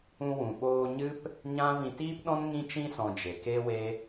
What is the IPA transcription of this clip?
ũ˧ w ũ˨ ɓ oː˧ ɲ ɨ˦ p | ɲ ã˦ v ĩ˧ t iː˦ p ɗ ɔ̃˦ n ŋ ĩ˧ t͡ʃ ĩ˧ s ɔ̃˨ d͡ʒ e˨ k eː˦ w eː˦

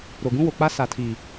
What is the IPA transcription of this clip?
ɾ o˨ ɡ ũ˦ w o˨ k͡p a˦ s a˨ tʰ i˨

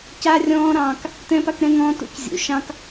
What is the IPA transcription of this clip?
c a˦ rʲ ɔ̃ː˦ ɾ ɑ̃ː˧ k | t ɛ̃ː˦ p a˦ k ɾ ɛ̃˦ ŋ ɔ̃ː˦ t ṵ˦ c zʲ ṵ˨˦ ʃ ɑ̃˦ k

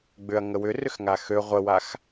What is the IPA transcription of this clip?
ɡ͡b ʏ ɐ̯ ŋ ə w ʏ r ʏ x ŋ a x ø ʁʷ ə w a x

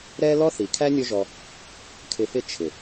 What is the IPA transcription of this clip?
ɾ ɛ˦ l ɔ˦ θ i˨ kʰ æ˦ nʲ ʊ˦ ʒ ɔ˧ | kʰ ɪ˧ f ɪ˦ t͡ʃʰ ɪ˨

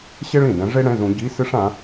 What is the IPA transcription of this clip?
ɕ e˥ ɭ ĩ˨˩ d̪ ɛ̃˨˦ ʐ e˥ ɽ ɛ̃˧˥˧ z ũ˨˦ ɟ i˧˥˧ s ɨ˥ ʂ ã˨˦

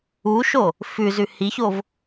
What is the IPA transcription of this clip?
u ʃ o | f ʉ z ʉ h i ç o v

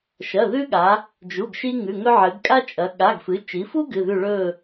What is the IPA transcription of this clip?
ʃ ɐ˩˧˩ ð ʉ˦ ɠ a˩˧ | d͡ʒ u˩˧˩ ɡ ʃ i˦ ŋ ʉ˩˧˩ ŋ ɵ˦ ʕ ɨ˩˧ ɡ kʼ a˦ t͡ʃʼ ɐ˩˧ ɠ a˩˧˩ ɡ f ɨ˩˧ t͡ʃ i˩˧ f u˦ ɡ ɨ˩˧˩ ð ʉ˦˨ ɭ ɵ˦˨

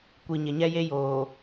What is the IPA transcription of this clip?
kʷ i˨ ɲ ɪ˨ ɲ ɛ˦ j e˦ j oː˨

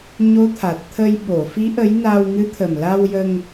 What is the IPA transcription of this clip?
ɲ o˧˥ t̪ʰ a˨˩ t̚ t̪ʰ ə˧ j ɓ o˨˩˨ f i˧˥ ʔ ə˧˥ j n a˧ w ŋ ɨ˧˥ t̪ʰ ə˨˩ m l a˧ w j ə˧ ŋ

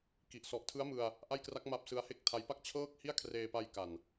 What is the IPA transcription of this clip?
k i˨˩ ʔ s ɔ˨˩ ʔ tʰ ɯ˦˥ a̯ m ɯ˧ a̯ | ʔ a˥˩ j k r a˦˥ k̚ m a˦˥ p̚ s ɯ˦˥ a̯ h e˥˩ k̚ tʰ a˦˥ j p a˦˥ k̚ t͡ɕʰ ɤː˥˩ k̚ h i˥˩ a̯ kʰ r eː˧ p a˧ j k a˨˩ n

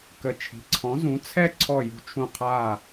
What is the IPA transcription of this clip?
k ə˥˧ t͡ʃʰ i̤˧˥ ǀʰ ɔ̃˧˥ z ũ˧˥ t͡sʰ ɛ˥˧ ǀʰ ɔ˥˧ j ṳ˥˧ t͡ʃʰ ũ˥˧ qʰ aː˥˧

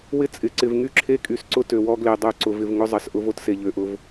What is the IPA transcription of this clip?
w ɪ˦ t͡sʼ ɪ˨ ǀ ɪ˨ v ŋ y˦ ǁʰ e˦ kʼ y˨ s ǀ ʊ˦ t ø˨ w ɔ˦ ɡ l e˨ dˤ ø˦˨ ǀ ʊ˨ v ɪ˨ v ŋ ʊ˦ zˤ ɐ˨ s ʔ ʊ˦ v o˦ t s e˨ ʎ ø˨ ʔ ʊ˦ v

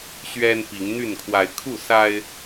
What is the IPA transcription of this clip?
ɕ ɥ ɛ˦ n p i˨˦ ŋ n̪ y˥˨ n kʰ w a˨˦ ɪ̯ kʰ u˥˨ s a˦ ɪ̯

